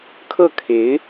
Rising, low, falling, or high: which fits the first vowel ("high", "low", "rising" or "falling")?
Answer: falling